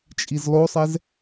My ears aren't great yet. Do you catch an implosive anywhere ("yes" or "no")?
no